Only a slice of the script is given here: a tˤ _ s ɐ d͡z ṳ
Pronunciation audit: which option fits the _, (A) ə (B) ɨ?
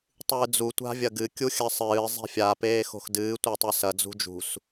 B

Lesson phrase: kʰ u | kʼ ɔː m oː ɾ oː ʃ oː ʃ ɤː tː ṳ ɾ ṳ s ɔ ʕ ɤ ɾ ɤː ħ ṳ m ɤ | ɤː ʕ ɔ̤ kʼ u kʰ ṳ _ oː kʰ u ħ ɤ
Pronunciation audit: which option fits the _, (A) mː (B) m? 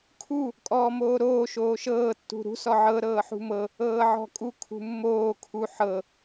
A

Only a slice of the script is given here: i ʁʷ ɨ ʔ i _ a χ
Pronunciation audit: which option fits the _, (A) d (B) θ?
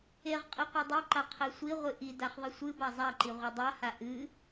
A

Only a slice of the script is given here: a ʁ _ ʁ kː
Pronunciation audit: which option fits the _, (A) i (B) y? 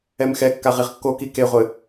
A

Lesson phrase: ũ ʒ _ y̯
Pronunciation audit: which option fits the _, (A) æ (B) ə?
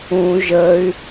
B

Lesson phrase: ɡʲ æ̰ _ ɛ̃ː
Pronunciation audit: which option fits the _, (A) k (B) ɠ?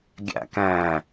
A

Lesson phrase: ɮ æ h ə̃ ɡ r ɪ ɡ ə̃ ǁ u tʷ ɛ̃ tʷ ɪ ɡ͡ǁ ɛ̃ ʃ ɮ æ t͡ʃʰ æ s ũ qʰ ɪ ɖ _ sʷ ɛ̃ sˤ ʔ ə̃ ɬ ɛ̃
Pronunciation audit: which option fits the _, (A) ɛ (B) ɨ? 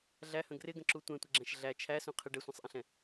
A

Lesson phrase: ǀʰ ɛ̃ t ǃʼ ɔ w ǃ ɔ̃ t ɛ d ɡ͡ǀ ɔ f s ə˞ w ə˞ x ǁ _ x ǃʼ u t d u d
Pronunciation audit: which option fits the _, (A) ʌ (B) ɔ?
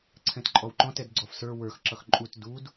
A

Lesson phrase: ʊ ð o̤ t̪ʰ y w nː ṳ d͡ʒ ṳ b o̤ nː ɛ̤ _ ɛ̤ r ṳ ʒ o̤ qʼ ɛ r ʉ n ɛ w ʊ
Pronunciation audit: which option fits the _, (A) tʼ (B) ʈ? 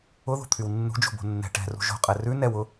B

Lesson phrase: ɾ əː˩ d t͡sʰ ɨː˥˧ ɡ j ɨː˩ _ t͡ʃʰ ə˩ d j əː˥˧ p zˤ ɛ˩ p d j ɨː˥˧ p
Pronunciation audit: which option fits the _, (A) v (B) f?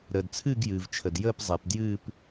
A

